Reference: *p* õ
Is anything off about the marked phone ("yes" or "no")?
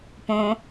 no